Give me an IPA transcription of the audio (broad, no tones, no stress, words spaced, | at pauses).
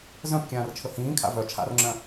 zœ̃p kʲãːrt͡ʃʰɵhĩːkʰa̰ vœ t͡ʃʰa̰rŋ͡ǁœ̃